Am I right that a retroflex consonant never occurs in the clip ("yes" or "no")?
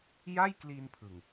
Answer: yes